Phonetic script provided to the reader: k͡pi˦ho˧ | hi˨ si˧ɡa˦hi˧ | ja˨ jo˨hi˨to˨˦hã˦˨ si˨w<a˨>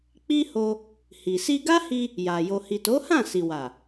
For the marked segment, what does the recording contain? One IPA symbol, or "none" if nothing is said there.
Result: a˨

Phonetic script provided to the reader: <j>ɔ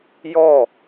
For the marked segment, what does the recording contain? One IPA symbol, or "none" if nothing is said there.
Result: j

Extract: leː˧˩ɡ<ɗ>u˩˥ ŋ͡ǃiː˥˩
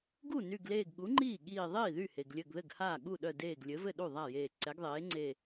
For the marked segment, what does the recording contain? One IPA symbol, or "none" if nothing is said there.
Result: ɠ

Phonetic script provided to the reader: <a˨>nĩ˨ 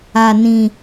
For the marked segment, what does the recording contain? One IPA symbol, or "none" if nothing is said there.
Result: a˨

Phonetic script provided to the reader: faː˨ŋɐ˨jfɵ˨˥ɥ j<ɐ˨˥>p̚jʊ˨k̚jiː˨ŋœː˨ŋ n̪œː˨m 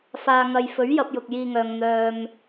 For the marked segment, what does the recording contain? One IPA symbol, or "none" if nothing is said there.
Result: ɐ˧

